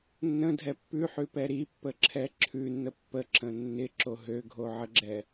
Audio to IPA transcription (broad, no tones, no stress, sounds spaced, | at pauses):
nː ə̃ dʱ ɛ pː ʉ ħ ʉ p ɛ ɾ i pː ə ǁʰ ɛ ǁʰ ʉ nː ə pː ə ǁ ə̃ nː ɪ ǁ o ɦ ø ɡʱ o ʕ ə ɡ͡ǁ ɛ